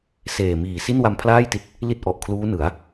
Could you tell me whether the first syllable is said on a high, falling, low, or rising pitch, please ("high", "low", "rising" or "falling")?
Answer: low